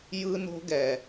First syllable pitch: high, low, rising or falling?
high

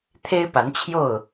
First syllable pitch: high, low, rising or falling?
high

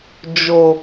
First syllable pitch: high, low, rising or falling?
low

